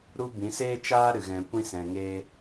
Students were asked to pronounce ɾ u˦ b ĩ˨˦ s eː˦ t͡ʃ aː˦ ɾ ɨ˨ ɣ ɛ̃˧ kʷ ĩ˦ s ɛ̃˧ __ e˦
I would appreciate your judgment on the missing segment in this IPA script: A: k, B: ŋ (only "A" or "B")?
B